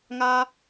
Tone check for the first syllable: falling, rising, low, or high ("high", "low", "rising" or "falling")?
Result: high